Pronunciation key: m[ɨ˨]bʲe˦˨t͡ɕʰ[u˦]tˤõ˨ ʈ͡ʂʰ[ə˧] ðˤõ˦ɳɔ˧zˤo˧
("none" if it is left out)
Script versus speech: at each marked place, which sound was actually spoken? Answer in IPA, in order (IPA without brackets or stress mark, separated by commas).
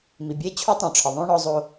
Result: i˨, u˦, ə˨